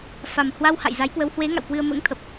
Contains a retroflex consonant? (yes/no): no